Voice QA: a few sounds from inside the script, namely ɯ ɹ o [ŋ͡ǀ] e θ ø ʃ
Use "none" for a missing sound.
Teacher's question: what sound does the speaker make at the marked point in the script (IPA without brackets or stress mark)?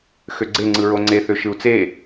ŋ͡ǀ